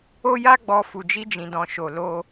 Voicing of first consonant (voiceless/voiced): voiced